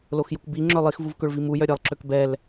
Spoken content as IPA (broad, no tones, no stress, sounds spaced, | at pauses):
l o x j u k b i ŋ͡ǁ œ lˠ i x v u v k ø ɭ v i m u j œ ɾʲ ɛ lˠ ǁ ø k b ɛ l